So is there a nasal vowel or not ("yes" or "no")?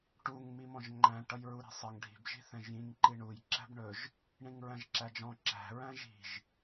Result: yes